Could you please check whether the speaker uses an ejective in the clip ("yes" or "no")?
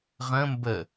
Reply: no